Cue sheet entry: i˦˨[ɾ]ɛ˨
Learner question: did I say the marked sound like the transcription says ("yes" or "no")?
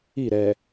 yes